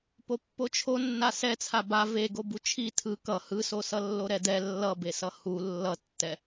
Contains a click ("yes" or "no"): no